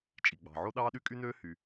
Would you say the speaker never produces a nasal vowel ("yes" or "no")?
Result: yes